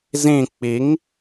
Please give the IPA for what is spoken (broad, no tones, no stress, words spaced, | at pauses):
zĩ k͡piŋ